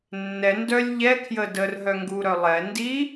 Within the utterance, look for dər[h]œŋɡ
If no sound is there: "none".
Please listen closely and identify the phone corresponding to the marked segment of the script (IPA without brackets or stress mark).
ɦ